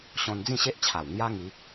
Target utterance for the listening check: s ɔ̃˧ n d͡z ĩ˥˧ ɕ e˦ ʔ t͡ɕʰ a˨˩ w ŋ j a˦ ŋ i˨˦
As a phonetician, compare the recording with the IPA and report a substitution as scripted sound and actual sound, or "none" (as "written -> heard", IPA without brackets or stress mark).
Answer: s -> ɕ